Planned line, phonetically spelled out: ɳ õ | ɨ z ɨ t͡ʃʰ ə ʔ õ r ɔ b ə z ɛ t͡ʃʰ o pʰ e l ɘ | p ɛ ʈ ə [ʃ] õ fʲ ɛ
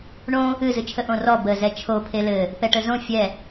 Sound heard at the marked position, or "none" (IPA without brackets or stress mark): z